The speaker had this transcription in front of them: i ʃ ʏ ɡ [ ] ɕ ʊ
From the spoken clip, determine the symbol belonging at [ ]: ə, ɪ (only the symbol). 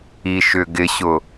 ɪ